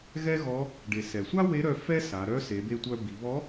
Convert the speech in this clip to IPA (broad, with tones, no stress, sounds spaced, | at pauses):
ɣ ɛ˥ ɣ ɔ˧˥ | ɖ e˩ s ɛ˩ sʷ a˥ w e˧˥ ɾ œ˧ f ɛ˥ s a˩˧ ɾ œ˧˥ s e˩˧ b e˧ tʷ œ˧ b i˩˧ β ɔ˧˥